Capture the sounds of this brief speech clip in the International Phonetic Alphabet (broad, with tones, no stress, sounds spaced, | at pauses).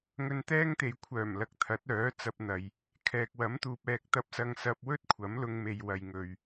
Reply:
ŋ ɵ˧ n t̪ ɛː˥ ŋ t̪ e˨ j kʷʰ œː˨˩ m l ɐ˨˥ k̚ t̪ʰ ɐ˨˥ t̚ œː˨˥ t͡s ɐ˧ p̚ n̪ ɐ˨ j | kʰ ɛː˨ k̚ w ɐ˨˥ m t̪ uː˨ p̚ ɛː˧ k̚ t̪ ɐ˧ p̚ s ɐ˧ ŋ s ɐ˧ p̚ w ɵ˥ t̚ kʷʰ ɐ˨˥ m l ʊ˧ ŋ m e˨ j w ɐ˨ j ŋ ɵ˨ ɥ